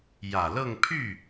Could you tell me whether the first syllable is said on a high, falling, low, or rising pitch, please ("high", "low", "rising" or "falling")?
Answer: low